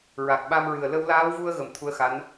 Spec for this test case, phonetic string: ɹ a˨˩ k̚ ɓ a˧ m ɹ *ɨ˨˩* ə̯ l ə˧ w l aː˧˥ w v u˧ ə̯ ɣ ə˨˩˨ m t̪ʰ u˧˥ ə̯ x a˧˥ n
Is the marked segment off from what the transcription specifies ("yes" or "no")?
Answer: no